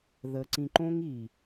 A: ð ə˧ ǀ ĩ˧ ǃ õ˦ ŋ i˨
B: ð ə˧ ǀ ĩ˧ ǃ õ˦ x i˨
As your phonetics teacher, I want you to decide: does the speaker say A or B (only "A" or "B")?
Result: A